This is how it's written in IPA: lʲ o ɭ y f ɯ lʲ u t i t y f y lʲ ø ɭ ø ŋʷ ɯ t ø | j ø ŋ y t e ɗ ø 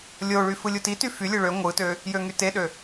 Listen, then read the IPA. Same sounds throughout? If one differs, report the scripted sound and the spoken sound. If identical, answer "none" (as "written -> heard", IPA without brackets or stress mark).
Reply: none